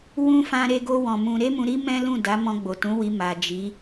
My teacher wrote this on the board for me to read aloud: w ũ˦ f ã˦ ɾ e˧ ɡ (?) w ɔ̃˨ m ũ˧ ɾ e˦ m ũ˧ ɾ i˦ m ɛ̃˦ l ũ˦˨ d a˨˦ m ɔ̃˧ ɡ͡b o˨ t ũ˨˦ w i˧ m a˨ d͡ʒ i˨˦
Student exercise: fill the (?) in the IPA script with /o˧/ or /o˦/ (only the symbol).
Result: o˧